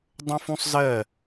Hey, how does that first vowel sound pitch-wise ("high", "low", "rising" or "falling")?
high